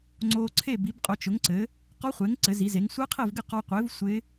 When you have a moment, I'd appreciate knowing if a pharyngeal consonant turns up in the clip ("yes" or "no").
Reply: no